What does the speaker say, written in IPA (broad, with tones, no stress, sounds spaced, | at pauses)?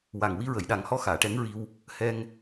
w a˨˩ ŋ w i˧ ɹ ə˨˩˨ j ɗ a˨˩˦ ŋ h ɔ˧˥ x aː˨˩˨ ʈ ɛ˧˥ ŋ ɹ i˧ w | h ɛ˧ ŋ